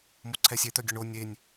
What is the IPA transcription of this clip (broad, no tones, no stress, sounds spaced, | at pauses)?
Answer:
m o ǀʰ ɛ sʲ e t̪ œ ɡʲ ɵ ɳ o nʲ e nʲ